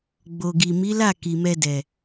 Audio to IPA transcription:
ɡ͡b o˨ ɡ i˨ m i˨˦ l a˦˨ k i˨ m ɛ˧ d ɛ˨

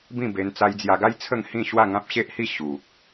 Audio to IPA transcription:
b ĩ˥˧ b e˧ n t͡s a˧ j d͡z j a˧ ɡ a˦ j t͡sʰ ə˥˧ ŋ h ĩ˥˧ ɕ w a˥˧ ŋ ã˦ p̚ ɕ e˦ ʔ h i˥˧ ɕ u˨ k̚

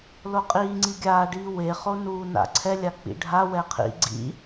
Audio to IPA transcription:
l o qʼ iː ŋ͡ǀ i ɡʲ aː ɖ iː w e χ o n uː n a̰ ǀʰ ɛ lʲ a k͡p ḭ ɖʱ a w ɛ qʰ ḭ ɡ͡ǀ ḭ

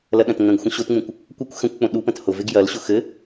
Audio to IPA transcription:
l ɐ ɗ ɐ̃ t ŋ ə̃ ɡ xʷ ə̃ ɕ o t ŋ͡m ũ kʷ | kʷ ɐ kʷ x ə̃ kʷ k͡p õ ɗ u p ə̃ t h ʊ v e ɡ j ɐ l ɕ ʊ x ɘ

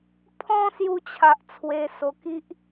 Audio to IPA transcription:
pʰ ɔ̃˦ s j u˧ t͡ɕʰ a˨ ʔ t͡sʰ w e˧ s o˧ k i˦ ʔ

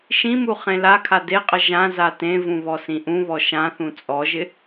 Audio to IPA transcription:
ʃ ĩ m u χ ẽ l a kʰ a d e qʼ ə ʒ ã z a t ẽ v ũ β ɔ s ĩ ʔ ũ β ɔ ʃ ã θ ũ t͡sʼ ɔ ʒ ɪ

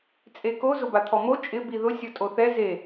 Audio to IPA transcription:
t͡sʼ e k o z ʊ b a t̪ʰ ɔ m o t͡ʃʼ ɪ b i ð ʊ sʲ ɔ tʼ o θ ɛ z e

